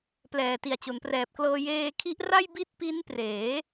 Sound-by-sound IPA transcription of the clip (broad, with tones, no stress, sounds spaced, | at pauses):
p l ɛː˨˩ t i˨˩ a̯ t͡ɕ o˩˦ n p r ɛː˨˩ p̚ k l ɤː˧ j eː˧ kʰ i˦˥ ʔ r a˥˩ j b i˥˩ t̚ p i˦˥ n p r eː˩˦